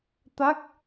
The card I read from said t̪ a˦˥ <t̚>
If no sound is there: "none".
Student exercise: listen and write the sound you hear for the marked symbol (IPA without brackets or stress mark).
k̚